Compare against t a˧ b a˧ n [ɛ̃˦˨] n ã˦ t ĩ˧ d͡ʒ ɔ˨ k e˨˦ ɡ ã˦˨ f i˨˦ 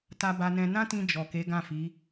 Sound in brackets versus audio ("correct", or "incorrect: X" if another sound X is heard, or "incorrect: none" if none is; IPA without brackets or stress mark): incorrect: ɛ̃˧